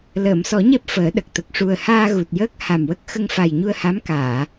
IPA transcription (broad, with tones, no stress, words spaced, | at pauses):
ləː˨˩˨msɔ˨˩˦ɲɛ˦˥p̚ fəː˨˩˦ɗə˨˩k̚ t̪ə˨˩k̚ʂu˨˩ə̯ haː˧ ɣu˨˩t̚jəː˦˥k̚ ha˨˩mwə˦˥k̚ xə˧ŋfa˨˩jɲu˧ə̯ha˧˥m kaː˨˩˨